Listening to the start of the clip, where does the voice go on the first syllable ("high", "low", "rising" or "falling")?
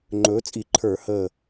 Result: rising